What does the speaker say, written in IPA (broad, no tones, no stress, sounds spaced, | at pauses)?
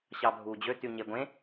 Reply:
ɕ ɑ bʱ uː d͡ʑ ø t y ɲ e ɡʷ ẽ